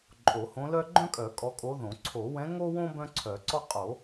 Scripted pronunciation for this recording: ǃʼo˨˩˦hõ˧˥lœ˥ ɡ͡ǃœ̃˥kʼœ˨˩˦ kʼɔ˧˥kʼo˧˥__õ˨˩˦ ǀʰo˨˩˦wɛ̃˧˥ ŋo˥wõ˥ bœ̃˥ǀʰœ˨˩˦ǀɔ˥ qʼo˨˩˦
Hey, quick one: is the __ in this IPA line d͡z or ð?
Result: ð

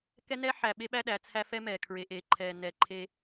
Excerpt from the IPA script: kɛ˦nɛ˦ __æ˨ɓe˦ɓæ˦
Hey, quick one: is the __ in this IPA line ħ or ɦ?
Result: ħ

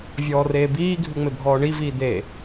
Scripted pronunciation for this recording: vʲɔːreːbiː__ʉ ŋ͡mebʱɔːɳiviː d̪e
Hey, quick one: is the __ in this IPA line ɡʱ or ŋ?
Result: ɡʱ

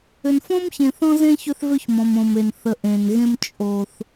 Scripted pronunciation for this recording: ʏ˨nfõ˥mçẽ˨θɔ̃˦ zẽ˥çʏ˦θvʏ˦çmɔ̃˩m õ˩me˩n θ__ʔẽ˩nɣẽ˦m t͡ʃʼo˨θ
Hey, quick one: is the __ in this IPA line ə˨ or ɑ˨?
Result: ə˨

